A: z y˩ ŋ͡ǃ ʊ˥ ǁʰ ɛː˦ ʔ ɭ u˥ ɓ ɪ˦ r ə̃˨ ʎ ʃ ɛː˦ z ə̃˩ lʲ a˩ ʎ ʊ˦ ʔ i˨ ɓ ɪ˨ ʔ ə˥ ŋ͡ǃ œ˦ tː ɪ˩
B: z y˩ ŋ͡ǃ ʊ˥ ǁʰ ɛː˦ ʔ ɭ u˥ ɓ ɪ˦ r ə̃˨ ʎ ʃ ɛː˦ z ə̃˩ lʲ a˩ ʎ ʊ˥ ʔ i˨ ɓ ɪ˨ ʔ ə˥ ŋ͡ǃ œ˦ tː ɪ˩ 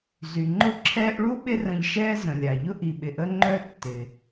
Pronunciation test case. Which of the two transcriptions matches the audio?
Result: A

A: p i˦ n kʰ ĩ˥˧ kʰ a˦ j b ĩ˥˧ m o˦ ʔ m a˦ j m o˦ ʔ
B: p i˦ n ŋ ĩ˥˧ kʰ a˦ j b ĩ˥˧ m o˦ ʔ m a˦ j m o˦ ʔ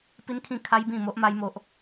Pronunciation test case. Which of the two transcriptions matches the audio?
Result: A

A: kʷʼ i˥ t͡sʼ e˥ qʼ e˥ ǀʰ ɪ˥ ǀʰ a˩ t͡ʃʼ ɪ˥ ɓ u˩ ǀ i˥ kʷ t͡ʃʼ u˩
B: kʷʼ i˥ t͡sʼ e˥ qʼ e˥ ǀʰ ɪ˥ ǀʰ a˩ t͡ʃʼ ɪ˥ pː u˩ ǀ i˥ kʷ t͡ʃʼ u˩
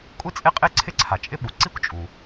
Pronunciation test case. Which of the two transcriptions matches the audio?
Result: A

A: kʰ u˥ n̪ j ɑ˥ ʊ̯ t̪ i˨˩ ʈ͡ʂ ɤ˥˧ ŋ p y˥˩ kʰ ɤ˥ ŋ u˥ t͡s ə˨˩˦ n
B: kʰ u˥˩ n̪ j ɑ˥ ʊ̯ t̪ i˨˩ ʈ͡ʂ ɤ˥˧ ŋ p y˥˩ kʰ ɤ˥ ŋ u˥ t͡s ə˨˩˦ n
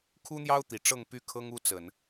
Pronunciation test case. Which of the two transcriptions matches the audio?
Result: A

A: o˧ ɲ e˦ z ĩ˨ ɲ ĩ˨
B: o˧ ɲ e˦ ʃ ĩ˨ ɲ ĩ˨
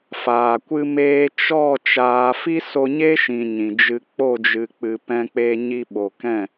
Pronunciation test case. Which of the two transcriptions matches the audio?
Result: B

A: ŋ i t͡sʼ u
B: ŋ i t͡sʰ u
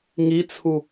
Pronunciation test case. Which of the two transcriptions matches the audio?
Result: B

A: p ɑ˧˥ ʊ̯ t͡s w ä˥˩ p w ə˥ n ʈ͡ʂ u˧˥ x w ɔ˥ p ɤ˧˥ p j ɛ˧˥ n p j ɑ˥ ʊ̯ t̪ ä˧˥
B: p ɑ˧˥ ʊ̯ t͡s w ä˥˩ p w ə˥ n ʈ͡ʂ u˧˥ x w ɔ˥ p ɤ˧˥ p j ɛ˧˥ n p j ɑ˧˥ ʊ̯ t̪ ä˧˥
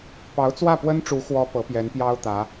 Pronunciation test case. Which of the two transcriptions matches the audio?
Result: A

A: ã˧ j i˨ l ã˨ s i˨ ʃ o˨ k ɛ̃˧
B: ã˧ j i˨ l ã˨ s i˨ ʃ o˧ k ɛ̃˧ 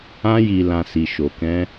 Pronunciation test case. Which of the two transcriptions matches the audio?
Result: A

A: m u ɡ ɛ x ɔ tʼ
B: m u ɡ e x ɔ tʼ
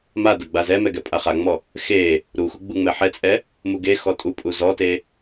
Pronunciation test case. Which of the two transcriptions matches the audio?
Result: B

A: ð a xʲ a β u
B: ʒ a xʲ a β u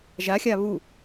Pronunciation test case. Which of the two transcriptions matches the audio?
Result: B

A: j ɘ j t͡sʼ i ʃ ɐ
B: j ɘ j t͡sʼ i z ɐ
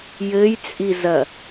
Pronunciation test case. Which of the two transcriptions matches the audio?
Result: B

